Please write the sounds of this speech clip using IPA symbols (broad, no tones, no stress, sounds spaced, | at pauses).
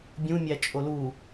bʲ ũ mʲ æ t͡ʃʼ o l u